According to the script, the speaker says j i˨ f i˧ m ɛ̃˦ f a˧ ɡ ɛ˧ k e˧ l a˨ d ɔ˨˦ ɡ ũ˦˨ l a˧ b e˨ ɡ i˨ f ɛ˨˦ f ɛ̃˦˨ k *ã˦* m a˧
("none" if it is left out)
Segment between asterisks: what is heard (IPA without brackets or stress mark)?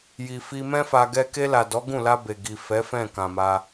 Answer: ã˨